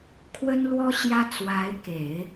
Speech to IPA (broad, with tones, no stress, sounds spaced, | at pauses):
kʰ w ə˥ n l w ɔ˥ ɕ j ä˥ t͡s w a˧˥ ɪ̯ k e˨˩˦ ɪ̯